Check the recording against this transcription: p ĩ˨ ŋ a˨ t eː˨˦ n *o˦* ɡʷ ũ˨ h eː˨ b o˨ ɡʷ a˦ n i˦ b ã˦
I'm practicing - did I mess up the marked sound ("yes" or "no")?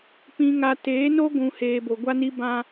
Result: no